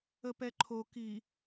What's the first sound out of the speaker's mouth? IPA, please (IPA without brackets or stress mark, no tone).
ə